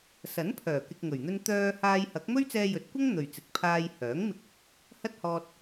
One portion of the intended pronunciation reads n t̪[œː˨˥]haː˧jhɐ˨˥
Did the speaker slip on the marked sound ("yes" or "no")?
yes